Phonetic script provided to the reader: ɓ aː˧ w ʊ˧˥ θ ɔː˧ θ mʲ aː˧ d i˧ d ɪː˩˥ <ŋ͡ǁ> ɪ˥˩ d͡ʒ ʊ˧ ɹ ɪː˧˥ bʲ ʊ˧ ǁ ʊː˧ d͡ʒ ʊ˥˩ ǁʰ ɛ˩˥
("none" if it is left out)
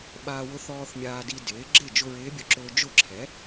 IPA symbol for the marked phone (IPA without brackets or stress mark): ɡ͡ǁ